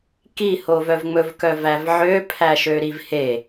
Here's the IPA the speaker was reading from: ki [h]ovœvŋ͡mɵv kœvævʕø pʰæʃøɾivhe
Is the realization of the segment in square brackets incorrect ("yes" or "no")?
no